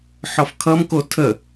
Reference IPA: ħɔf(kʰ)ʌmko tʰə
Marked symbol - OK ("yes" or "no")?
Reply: yes